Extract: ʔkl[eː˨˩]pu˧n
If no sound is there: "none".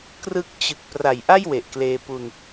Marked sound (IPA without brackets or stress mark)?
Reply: eː˧